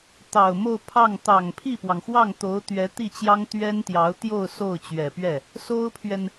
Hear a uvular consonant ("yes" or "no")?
no